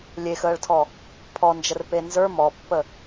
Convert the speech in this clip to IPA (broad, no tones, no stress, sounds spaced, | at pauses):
lʲ e x əː ɭ tʰ ɔ | pʰ ɔ n d͡ʒ ə r p e n z ə˞ m ɔ pː ə